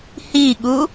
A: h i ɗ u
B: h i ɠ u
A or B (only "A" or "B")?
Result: B